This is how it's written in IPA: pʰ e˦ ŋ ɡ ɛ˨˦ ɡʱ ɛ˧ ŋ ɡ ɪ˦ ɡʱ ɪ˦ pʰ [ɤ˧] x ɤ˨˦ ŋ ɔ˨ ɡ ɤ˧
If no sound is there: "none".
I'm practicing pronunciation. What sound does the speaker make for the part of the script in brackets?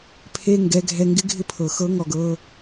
ɤ˨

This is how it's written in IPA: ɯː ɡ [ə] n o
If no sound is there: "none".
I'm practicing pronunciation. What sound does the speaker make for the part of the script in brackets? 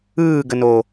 ə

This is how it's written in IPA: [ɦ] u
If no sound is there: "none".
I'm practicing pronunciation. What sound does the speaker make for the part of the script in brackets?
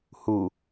h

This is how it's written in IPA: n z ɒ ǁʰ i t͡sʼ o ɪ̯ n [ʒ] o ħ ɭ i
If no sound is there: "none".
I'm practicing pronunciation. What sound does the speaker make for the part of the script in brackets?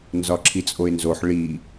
z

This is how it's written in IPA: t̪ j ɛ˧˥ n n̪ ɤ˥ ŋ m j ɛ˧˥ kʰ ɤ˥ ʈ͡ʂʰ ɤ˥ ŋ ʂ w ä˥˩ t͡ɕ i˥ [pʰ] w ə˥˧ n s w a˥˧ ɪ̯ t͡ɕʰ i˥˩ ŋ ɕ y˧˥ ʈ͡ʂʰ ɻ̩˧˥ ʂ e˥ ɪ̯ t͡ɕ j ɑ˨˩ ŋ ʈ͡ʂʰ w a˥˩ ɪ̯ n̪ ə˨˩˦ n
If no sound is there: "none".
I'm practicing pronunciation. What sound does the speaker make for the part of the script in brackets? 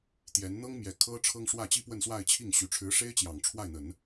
p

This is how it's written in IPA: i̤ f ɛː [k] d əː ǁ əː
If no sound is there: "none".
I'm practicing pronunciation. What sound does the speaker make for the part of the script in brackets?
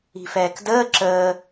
k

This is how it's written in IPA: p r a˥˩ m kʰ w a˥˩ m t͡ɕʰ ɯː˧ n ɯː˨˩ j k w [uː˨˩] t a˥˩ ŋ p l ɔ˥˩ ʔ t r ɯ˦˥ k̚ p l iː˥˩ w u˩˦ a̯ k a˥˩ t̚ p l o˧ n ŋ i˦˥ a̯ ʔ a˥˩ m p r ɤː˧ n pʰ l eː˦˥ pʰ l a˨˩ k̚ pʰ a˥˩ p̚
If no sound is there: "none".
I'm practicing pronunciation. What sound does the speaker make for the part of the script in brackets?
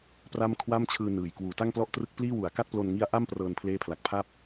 uː˩˦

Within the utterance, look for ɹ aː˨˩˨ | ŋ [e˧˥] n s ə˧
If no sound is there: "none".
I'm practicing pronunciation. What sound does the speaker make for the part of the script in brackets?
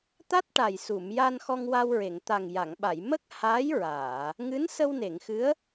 ɨ˧˥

